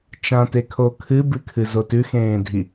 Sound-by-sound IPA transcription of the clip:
t͡ʃ ã t e kʰ o kʰ ɨ b ɨ kʰ ɨ z o t ʉ x ẽː dʱ i

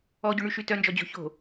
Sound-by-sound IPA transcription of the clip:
ɔ ɟ o ɳ y ʃ y t œ n d͡ʒ ɔ d͡ʑ o̤ ç o̤

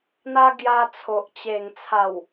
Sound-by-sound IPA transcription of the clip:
n̪ a˧ ɡ j a˧ t͡sʰ o˨ ʔ t͡ɕ e˨˩ ŋ t͡sʰ a˨˩ w

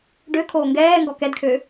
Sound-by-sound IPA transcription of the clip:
ɖ ø kʰ oː ŋ ɡ ɛː ŋ ɡ ɔ k ɛ d kʰ ø

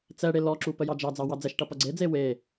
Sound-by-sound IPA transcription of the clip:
t͡s ɛ ɽ e l ɔ ǁ u p ə j ɑ d͡ʒ ɑ d͡z ɑ w ɑ d͡z ɛ ʃ ʈ ʌ p ʌ ɡ͡ǀ e d͡z e w e

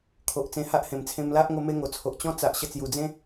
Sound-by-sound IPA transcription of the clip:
kʰ o˨ ʔ t͡s ẽ˧ h a˦ ʔ h ẽ˨˩ m t͡sʰ ẽ˧ m l a˦ ʔ ŋ o˦ m e˦ ŋ o˨˩ t͡sʰ o˨ ʔ t͡ɕ ɔ̃˦ t͡s a˨ ʔ ɕ ə˧ t͡s j u˨˩ d͡z ẽ˦

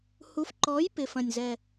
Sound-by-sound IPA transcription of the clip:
h u˨˥ f ǃ ɔ˨˥ j p ɪ˨˩ f ɐ̃˨˩ nʲ z ɛ˨˩

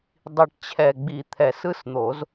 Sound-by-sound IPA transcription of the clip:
dˤ i˨˩ ʈ t͡ɕʰ ɛ˨˩ ɡ͡b i˨˩˦ t̪ʰ ɛ˨˩˦ s ɯ˧˥˧ s n̪ o˨˩˦ z

